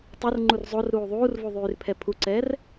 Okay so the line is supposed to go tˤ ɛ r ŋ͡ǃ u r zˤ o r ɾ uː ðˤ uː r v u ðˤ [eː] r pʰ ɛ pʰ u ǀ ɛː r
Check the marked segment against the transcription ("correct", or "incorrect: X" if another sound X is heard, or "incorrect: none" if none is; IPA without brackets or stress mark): incorrect: yː